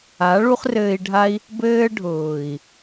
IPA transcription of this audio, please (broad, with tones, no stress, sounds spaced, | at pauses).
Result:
a˨˦ ɭ u˦ χ r ɘː˧ i̯ ɖʱ a˦ i̯ | b ɘː˧ ɖʱ ʊː˨ i̯